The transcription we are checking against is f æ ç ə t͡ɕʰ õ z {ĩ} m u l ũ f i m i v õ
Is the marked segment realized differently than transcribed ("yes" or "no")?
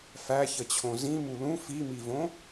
no